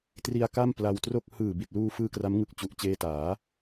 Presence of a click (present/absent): absent